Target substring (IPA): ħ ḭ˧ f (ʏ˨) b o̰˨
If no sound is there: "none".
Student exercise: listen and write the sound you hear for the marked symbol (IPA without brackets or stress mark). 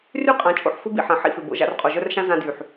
ʏ˨